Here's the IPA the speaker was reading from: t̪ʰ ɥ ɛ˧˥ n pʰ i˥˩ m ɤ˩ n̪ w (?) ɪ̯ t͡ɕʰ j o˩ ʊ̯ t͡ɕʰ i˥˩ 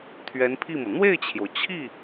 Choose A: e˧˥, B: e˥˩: B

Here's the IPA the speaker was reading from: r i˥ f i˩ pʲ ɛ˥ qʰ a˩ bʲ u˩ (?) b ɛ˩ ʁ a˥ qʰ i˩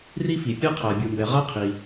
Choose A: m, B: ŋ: A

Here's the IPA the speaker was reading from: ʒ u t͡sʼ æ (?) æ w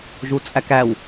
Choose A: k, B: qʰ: A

